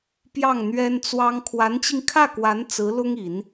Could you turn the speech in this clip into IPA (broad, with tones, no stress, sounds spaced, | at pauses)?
p j ɑ˥˩ ŋ n̪ ɥ ɛ˥ n t͡s w ɑ˥ ŋ kʰ w a˧˥ n t͡ɕ i˧ ŋ kʰ ä˥˩ k w a˧˥ n t͡s ɹ̩˧˥ l ʊ˥ ŋ i˨˩˦ n